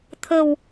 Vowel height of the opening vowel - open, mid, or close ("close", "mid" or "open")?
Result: mid